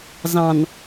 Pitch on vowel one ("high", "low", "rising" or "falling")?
low